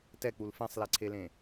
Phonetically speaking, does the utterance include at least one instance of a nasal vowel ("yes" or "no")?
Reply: yes